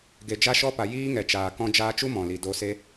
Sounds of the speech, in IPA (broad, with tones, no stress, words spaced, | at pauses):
ɡe˨d͡ʒa˦ʃɔ˦pa˨ jiː˦ŋɛ˨t͡ʃaː˨ kɔ̃˧d͡ʒaː˧t͡ʃu˦ mɔ̃˨li˨ do˧se˦